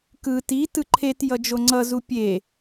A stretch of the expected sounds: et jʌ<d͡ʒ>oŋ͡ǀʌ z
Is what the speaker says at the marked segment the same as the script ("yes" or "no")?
yes